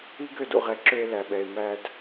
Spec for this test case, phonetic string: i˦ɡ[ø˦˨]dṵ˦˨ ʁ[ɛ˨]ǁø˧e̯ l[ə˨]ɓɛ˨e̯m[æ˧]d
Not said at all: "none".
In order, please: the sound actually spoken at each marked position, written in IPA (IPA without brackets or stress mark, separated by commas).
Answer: ø˦˨, ɛ˨, æ˨, æ˧